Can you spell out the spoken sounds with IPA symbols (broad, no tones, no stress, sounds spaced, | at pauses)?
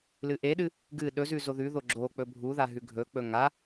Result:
l ɨ ʔ e ɗ ɨ | ɡ ɨ ɗ ɵ z ʉ z o ð ʉ ð o ɡ͡ǁ o k͡p ɵ bʱ u ð a ɦ ʉ ɡʱ ɵ k͡p ɵ ŋ a